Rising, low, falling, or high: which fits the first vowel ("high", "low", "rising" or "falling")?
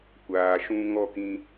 low